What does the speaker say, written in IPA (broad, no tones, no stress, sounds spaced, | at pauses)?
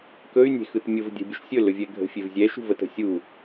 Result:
k ɵ y̯ nʲ e̤ x ɯ t mʲ ʊ v dʲ ə̤ bʲ ʊ ʃ sʲ ɵ l ɵ vʲ ɛ ɡʱ ə̤ fʲ e v zʲ ɛ ʃ ṳ v ə t ə̤ sʲ u